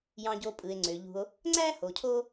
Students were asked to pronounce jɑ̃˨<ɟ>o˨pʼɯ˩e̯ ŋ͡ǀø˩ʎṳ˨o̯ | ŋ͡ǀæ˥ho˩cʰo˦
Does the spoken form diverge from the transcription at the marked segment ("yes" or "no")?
no